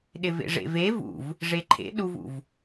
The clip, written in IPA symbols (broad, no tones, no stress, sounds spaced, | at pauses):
ɗ ɪ v ḛ ʐ ḛ v e v ṵ v | ʐ e ǃʰ ḛ ɗ u v ṵ v